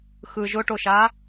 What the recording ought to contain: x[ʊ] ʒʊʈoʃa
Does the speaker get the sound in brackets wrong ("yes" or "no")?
yes